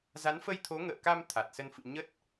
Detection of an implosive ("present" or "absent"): absent